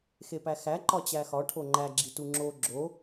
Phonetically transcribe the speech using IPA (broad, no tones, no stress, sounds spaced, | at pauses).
x e p æ x æ ǃ ɒ t͡ɕ æ x ɒ ʈʰ o ŋ͡ǃ æ ɡ͡ǁ i t u ŋ͡ǁ o ɡ͡ǁ o